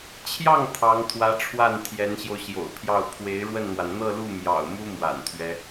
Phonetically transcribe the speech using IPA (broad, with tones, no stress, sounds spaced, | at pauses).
t͡ɕʰ j ɑ˥˩ ŋ t̪ʰ ɑ˧˥ ŋ t̪ʰ w ä˧˥ ʈ͡ʂʰ w a˥˩ n t̪ʰ j ɛ˧˥ n ɕ j o˧ ʊ̯ ɕ j o̰˨˩ ʊ̯ pʰ j ɑ˥˩ ʊ̯ pʰ w e˧˥ ɪ̯ ɻ w ə˥˩ n n̪ w a˩ n n̪ ɤ˥˧ l u˥˩ m j ɑ̰˨˩ ʊ̯ m u˥ m w a̰˨˩ n t̪ʰ ɥ ɛ˦